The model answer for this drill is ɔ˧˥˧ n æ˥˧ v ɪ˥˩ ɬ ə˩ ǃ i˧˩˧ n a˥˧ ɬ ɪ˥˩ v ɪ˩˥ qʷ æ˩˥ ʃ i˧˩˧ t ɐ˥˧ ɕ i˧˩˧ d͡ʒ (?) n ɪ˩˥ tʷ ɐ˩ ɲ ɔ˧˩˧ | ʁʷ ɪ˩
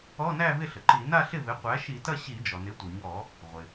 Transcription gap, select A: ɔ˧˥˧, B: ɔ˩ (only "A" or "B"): B